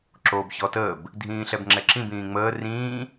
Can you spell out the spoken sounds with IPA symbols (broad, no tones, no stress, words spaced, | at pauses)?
ǁoːbçɔtəːb | dʱĩːɬɛbŋ͡ǁɛǁĩb ĩːŋ͡məː rĩː